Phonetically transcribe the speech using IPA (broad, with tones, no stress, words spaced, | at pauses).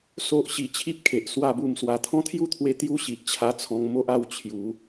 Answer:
so˦ʔ ɕi˧t͡ɕʰi˦p̚kʰe˨ʔ swa˥˧bu˥˧mswa˧ t̪ʰɔ̃˦t̪ʰju˥˧t̪ʰwe˧ t̪ju˥˧ɕi˨ʔt͡ɕʰa˧ t͡sʰɔ̃˧ŋmo˦ʔa˥˧w t͡ɕʰju˨˦